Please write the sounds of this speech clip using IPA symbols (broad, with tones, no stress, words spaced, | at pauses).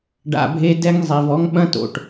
ɖa̰˨bʱe˦ dɛ˦ŋ zˤe˨vɔ˦ŋ ɓɐ̃˦to̰˨ʈ